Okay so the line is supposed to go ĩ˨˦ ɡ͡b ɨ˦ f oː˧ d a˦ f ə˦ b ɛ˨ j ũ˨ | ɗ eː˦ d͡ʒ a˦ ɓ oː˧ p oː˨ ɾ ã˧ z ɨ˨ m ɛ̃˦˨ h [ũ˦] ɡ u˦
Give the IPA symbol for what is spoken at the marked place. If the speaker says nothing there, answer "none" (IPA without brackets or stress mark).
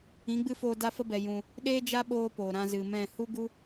u˦